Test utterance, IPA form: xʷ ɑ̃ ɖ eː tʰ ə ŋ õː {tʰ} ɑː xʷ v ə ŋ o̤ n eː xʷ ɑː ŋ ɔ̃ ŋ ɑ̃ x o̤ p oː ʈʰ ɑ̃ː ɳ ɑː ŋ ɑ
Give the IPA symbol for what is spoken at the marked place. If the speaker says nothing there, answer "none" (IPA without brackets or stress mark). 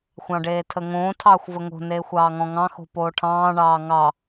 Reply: tʰ